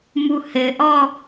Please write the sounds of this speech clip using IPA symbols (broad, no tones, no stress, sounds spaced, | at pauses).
m u h ɘ ʔ ɔ